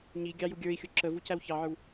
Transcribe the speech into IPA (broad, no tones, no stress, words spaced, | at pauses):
ɲi ɡʲɑjuɡʲə˞i̯xʲʊ ǁə vucæwçɑʕə˞w